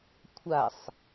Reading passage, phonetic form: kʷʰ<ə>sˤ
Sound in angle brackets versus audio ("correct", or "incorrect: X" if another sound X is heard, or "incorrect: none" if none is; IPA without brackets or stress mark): incorrect: a